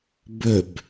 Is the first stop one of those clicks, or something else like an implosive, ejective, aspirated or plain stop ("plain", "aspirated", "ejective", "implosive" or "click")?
plain